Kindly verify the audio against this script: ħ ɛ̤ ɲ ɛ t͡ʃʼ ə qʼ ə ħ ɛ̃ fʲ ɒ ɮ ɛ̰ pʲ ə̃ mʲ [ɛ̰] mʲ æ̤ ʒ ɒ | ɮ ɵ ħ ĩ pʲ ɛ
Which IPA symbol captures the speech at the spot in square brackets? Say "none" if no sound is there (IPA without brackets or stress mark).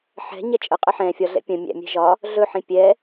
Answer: æ̰